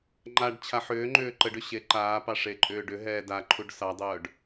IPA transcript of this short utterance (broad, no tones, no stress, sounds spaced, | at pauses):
ŋ͡ǃ a ɖ t͡ɕʰ a ħ ʏː ŋ͡ǃ ʏː ǃ ə ɖ ʏ ɕ e ǃ aː p ɑ ʂ e ǃʼ ʏː ɖ ʏ ɦ ɛː d a ǃʰ u ɖ s ɑ dˤ œː ɖ